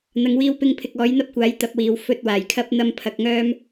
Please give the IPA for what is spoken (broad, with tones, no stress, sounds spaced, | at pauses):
n̪ ɐ˨˧ ŋ w iː˧ w p ɪ˧ ŋ pʰ ɪ˨ k̚ ɔː˨˥ j n̪ ɐ˥ p̚ kʷ aː˨˥ j t̪ ɐ˨˥ p̚ w iː˨ w f ɵ˧ t̚ w aː˨˩ j kʰ ɐ˥ p̚ n̪ ɐ˥ m pʰ ɐ˧ k̚ ŋ œː˥ m